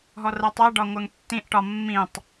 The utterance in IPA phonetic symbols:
ɦ ɔ r ɜ tˤ ɜ ɖ ɒ ŋʷ ɜ ŋ tː ĩ ʔ ʈ ɒ mː ĩ tˤ

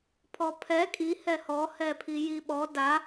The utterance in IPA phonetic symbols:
pʰ ɔ pʰ ɛ kʼ i h ɛ h ɔ h ɛ pʰ i j i ɓ ɔ d a

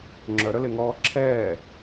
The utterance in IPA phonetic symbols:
ŋ͡ǁ œ ɾ œ l e ŋ ɔː ǁʰ ɛː

